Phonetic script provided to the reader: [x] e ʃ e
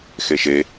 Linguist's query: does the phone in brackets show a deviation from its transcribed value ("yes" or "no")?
no